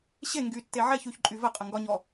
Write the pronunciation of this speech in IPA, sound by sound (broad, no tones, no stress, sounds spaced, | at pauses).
ɕ e ŋ ɡ y tː e ʕ ɛ ç y ç ǃʼ y v ə qʼ ə ŋ ɡ ɒ ɲ ɔ